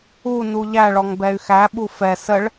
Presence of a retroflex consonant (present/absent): present